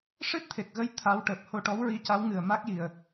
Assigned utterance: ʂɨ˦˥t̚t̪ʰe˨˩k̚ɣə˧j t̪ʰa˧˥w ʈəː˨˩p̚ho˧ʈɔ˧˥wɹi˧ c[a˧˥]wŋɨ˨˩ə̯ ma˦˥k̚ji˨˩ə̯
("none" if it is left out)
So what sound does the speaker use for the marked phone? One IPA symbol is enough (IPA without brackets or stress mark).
a˧˥